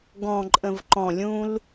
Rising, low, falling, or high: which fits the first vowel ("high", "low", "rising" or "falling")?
low